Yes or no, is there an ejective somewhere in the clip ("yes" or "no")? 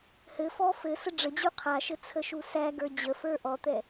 no